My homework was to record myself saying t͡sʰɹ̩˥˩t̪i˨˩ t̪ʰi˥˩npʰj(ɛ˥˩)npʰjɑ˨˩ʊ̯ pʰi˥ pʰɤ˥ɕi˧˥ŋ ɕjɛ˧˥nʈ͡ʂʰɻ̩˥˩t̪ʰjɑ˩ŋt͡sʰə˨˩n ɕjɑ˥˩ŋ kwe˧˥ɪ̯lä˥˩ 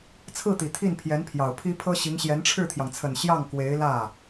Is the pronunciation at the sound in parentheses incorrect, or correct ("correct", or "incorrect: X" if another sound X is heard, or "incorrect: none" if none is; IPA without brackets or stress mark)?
incorrect: ɛ˧˥